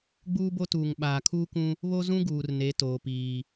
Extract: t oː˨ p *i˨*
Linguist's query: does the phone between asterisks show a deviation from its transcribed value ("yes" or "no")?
yes